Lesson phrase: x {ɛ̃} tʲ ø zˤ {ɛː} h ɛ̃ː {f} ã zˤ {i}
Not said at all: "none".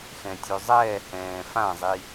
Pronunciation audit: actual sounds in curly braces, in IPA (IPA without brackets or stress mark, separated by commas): ɛ̃, ɛː, f, i